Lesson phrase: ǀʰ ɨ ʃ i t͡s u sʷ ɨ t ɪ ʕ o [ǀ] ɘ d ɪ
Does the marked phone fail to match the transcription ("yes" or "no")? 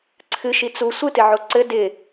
no